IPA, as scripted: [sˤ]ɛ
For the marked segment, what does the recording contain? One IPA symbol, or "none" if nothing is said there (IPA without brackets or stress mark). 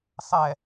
sˤ